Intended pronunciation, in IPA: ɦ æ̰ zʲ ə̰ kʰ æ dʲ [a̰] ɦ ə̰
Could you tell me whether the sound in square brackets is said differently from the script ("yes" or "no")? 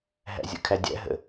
yes